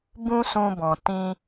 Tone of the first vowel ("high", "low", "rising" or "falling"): high